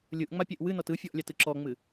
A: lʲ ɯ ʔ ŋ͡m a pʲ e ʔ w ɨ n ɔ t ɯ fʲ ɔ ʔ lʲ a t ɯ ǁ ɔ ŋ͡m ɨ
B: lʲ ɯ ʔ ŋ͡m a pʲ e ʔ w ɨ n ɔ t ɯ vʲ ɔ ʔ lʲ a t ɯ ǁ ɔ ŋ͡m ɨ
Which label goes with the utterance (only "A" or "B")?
A